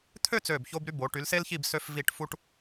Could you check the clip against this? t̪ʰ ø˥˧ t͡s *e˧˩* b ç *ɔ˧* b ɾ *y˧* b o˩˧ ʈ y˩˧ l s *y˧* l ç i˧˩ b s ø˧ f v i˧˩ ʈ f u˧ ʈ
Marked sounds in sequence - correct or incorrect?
incorrect: ø˧˩, incorrect: o˧, correct, incorrect: e˧

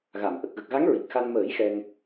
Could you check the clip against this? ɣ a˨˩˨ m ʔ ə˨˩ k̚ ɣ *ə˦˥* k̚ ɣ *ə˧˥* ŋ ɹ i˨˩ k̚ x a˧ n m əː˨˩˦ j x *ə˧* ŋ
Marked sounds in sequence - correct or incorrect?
incorrect: ə˨˩, incorrect: a˧˥, incorrect: ɛ˧

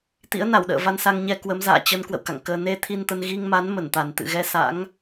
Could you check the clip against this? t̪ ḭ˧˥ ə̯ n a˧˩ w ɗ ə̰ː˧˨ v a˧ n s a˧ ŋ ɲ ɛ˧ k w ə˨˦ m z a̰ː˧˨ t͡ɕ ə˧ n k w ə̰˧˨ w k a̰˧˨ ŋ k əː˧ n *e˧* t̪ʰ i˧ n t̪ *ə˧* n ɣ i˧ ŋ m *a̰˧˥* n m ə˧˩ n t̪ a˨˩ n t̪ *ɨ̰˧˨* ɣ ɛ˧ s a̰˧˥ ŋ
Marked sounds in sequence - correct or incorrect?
correct, correct, incorrect: a˨˦, correct

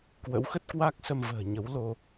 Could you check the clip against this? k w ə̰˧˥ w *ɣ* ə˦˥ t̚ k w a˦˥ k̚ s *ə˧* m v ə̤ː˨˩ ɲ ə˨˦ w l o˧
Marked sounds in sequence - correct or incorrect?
incorrect: x, correct

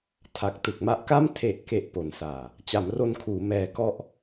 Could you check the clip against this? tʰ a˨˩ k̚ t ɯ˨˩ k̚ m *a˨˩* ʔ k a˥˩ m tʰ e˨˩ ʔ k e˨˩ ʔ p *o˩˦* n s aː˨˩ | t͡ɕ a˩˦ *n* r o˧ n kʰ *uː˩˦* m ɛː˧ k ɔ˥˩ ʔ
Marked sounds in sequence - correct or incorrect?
incorrect: a˦˥, correct, incorrect: m, correct

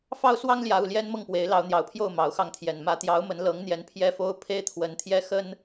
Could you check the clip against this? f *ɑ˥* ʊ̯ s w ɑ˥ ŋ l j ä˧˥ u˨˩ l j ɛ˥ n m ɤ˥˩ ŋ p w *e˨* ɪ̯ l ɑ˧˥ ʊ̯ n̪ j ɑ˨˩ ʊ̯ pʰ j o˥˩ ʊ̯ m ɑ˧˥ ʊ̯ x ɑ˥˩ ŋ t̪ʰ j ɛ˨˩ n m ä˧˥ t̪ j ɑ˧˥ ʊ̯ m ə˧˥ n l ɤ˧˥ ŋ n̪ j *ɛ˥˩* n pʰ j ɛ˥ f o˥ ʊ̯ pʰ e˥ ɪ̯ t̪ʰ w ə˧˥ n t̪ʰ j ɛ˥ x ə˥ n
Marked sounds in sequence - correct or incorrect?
correct, incorrect: e˧˥, incorrect: ɛ˧˥

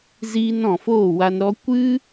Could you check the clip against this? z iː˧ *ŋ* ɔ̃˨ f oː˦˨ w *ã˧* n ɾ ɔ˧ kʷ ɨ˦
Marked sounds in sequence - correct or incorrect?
incorrect: n, incorrect: a˧

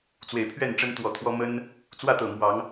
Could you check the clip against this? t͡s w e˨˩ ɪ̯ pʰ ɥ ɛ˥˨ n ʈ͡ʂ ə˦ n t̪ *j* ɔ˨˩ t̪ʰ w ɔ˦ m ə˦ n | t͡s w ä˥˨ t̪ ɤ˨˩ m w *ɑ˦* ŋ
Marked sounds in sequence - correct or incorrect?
incorrect: w, incorrect: ɑ˨˦

